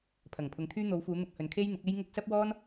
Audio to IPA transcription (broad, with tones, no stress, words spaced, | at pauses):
pʰɐ˨˩ŋpʰʊ˨˧ŋt̪ʰyː˥ n̪o˨˧wfuː˨˧ n̪ʊ˧k̚hɵ˨˧nkʰe˥j n̪ɪ˨˥k̚e˥jŋʊ˥k̚ sɐ˥p̚wɔː˥n